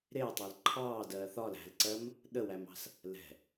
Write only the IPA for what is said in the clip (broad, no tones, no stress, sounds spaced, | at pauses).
ɾ ɪː tˤ ɛ l ǃʰ ɑː d ɜː θ ɒ l æ̤ l ǀ ɜ m | ɗ ə w æ m ɑ̤ s | l ɛ̤